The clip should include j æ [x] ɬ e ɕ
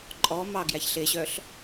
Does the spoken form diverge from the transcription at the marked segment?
yes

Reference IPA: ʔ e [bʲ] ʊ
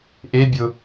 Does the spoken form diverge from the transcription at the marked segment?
no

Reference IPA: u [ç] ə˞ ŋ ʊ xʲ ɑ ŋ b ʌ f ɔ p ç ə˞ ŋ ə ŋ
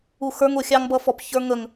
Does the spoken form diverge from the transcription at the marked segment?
yes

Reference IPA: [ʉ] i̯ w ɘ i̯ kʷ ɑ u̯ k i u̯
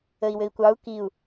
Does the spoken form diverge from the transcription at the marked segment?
yes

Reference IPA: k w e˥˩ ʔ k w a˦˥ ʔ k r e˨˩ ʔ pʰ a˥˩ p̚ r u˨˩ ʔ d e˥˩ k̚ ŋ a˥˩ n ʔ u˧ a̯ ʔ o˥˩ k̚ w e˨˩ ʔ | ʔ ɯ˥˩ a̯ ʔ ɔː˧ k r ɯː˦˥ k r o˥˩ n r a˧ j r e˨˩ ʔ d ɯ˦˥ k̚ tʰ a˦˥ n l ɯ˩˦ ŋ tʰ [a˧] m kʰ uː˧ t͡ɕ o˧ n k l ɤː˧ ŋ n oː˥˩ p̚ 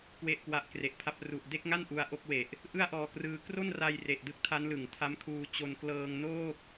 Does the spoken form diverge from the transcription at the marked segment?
yes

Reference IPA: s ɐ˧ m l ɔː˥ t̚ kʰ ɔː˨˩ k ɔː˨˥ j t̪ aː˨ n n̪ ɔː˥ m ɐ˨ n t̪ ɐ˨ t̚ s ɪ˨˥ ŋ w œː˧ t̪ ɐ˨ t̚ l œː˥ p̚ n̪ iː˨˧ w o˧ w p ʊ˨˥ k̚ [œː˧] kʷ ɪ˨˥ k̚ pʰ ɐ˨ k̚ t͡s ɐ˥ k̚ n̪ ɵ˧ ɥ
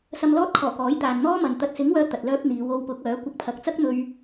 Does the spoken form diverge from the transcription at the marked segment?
yes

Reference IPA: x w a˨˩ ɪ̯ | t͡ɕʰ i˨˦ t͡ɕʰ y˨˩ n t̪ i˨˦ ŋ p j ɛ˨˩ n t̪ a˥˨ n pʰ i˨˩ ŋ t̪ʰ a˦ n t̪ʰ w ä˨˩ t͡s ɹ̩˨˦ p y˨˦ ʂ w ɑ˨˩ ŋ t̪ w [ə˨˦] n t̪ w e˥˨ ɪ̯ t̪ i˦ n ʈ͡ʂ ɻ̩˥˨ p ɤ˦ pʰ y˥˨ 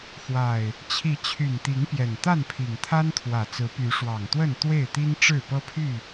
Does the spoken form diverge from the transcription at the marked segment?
yes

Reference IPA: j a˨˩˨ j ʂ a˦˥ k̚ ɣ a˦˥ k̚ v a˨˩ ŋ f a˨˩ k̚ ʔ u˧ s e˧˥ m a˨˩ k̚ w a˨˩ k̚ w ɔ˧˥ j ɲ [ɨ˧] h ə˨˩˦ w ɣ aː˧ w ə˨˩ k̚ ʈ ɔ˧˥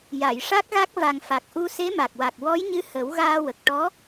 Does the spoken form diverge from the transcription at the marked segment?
yes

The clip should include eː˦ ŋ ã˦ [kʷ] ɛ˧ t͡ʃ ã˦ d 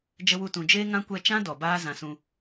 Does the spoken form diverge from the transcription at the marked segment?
no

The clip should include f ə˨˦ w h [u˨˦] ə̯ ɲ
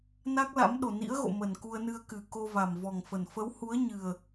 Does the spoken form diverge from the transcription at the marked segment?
no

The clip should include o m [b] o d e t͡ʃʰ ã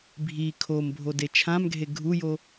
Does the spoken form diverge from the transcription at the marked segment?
yes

